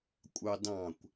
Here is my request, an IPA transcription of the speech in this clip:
kʷʼ ɑ d ɑ̃ kʷ

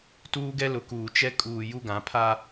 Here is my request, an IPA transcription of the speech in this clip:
t uː˦ ɡ ɛ˦ l ʊ˨ k uː˨ t͡ʃ ɛ˦ kʼ uː˨ j u˦ ɡ ã˨˦ pʰ a˦

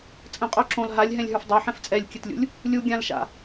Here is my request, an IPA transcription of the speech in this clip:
t͡sʼ ə̃ qʼ o ǁ õ l ɦ a lʲ ɦ ɛ̃ lʲ ɦ ə˞ f dˤ o ħ ɛ̃ f t͡sʼ ɛ lʲ kʲ ɘ t lʲ ṵ lʲ | lʲ u ɡʲ ã l ʃ a̰

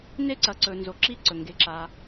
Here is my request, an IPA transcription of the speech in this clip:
n e˦˨ ǀ ɐ˩ ǀ ɵ˩ n z o˩ ǁ i˦˨ ǀ ɵ˩ ŋ ɡ e˩ ǁ a˩

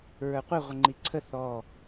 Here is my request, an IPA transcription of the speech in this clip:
ɹ ə˞ qʷ e ʁʷ ɪ ŋ͡ǃ i ǀʰ ə θ ɔ

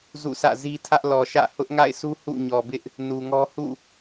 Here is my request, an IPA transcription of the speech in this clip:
z ṵ˦˨ sʰ ä̰˦˨ z i˦ tʰ ä˦ ʔ l ɔ˨ ʃ ä̰˦˨ h ʊ˦ ʔ ŋ a̰˦˨ ɪ̯ s u˦ h ṵ˦˨ ɲ ɔ˨ b ɪ˦ ʔ | n u˨ ŋ ɔ˦ h ṵ˦˨

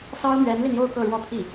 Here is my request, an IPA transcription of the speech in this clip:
s ɑ˥ ʊ̯ m ɥ ɛ˧˥ n l i˧ n j o˥˧ ʊ̯ k ɤ˥˧ ɻ w ɔ˥˧ t̪ʰ i˥˩

